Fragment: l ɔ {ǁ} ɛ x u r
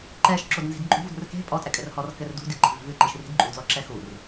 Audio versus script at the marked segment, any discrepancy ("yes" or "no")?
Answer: no